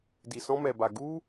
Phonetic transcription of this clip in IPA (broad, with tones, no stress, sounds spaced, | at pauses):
d i˧ s ɔ̃˦ m ɛ˧ b a˧ ɡ u˦